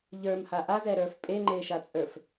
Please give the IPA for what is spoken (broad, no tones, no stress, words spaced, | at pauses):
ʎə˞mha ʔazɛɾə˞f pʼeŋ͡ǃeʃat͡sʼə˞f